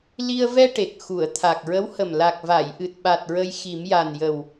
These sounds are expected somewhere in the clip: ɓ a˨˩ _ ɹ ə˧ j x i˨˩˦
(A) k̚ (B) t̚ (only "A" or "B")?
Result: B